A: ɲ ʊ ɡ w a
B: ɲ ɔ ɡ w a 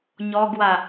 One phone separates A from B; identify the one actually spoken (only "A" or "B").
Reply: B